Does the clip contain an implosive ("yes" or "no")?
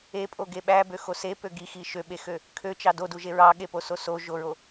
yes